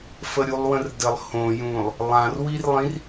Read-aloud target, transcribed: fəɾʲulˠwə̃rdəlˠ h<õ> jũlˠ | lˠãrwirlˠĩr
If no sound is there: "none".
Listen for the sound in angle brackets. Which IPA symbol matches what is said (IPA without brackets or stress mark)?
õ